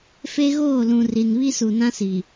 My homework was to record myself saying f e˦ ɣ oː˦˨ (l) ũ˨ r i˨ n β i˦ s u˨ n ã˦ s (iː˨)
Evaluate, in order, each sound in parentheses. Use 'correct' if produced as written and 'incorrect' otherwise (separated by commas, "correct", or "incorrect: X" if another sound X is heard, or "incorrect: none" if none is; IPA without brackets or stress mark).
correct, incorrect: i˨